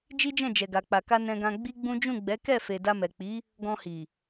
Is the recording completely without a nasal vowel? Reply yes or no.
no